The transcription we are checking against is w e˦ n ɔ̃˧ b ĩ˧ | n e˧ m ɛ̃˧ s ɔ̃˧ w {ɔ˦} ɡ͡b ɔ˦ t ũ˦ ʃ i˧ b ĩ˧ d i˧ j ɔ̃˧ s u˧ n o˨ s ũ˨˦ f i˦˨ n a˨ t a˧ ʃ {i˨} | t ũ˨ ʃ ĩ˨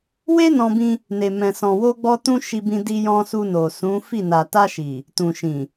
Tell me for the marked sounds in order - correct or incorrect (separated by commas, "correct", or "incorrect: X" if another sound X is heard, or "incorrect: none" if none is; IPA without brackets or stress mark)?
incorrect: o˦, correct